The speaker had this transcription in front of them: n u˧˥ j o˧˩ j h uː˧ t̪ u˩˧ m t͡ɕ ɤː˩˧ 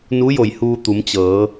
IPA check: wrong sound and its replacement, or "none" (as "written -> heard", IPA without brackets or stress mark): none